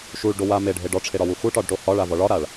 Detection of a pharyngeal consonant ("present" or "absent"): absent